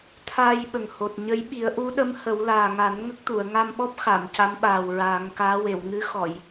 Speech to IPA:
t̪ʰ aː˧ j ɓ ə˨˩ ŋ h o˨˩ t̚ ɲ ə˧˥ j ɓ i˨˩˦ ə̯ ʔ u˧˥ ɗ ə˧˥ m h ə˨˩˦ w l aː˨˩ ŋ a˨˩˦ n ŋ ə˦˥ k̚ t̪ u˨˩˨ ə̯ ŋ a˧ m ɓ ɔ˦˥ p̚ x a˨˩˨ m c a˧˥ m ɓ aː˨˩ w ɹ aː˨˩˦ ŋ k aː˧˥ w e˨˩˨ w ŋ ɨ˧˥ x ɔ˨˩˨ j

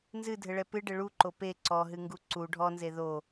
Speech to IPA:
n z ɨ dʱ ɘ ɭ ɛ p ɨ ɖ ɘ ɭ u ǃ o p e ǀ ɔ ɦ ɨ ŋ ɡ u ǀ u ɖʱ ɔ n z e ð o

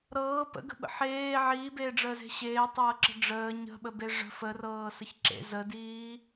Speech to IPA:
ɾ ɤː p ə̰ ɡ ə̤ ɓ ə̰ ħ eː ʕ iː b eː ɖ͡ʐ əː z e̤ ɕ eː tˤ ɤː ǁ ə̤ ɖ͡ʐ əː ɲ ə̤ ɓ ə b e ʐ ə̤ f ə r ɤː s ə ç ǁ ḛ z ə d iː

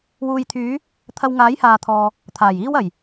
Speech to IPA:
w uː˨ j t̪ʰ yː˨˧ | t̪ʰ ɐ˨ w ŋ aː˨˥ j h aː˨ t̪ʰ ɔː˨ | t̪ʰ aː˨˩ j iː˧ w ɐ˨˩ j

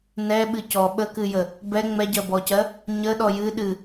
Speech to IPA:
n ɛ ɓ ɨ c ɔ ɓ ə k ɨ j ə | b ɛ ŋ͡m ɛ ɟ ɜ b ɔ c ɜ | ɲ ə ɗ ɔ j ɨ ɗ ɨ

